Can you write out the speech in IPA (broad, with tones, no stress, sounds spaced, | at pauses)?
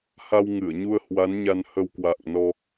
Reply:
h a˧ w ŋ ɨ˧˩ ə̯ ɲ u˧ ə̯ h w a˨˦ n ɲ a˧ n h ə˧ w k w a̰ː˧˨ ŋ n ɔ˧